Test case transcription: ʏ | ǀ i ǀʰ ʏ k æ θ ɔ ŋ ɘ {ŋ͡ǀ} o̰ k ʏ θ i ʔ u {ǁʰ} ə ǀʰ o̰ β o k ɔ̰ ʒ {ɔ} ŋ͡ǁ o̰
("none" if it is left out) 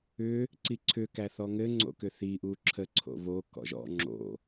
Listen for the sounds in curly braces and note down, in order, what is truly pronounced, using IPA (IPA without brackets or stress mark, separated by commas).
ŋ͡ǀ, ǁʰ, ɔ̰